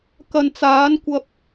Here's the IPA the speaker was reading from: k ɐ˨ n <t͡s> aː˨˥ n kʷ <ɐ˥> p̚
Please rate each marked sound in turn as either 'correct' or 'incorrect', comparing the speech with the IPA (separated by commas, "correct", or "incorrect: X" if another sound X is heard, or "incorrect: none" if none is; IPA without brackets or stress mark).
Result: correct, incorrect: ɐ˧